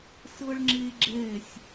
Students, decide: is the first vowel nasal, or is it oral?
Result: oral